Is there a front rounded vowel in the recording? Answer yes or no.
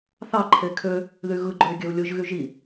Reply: yes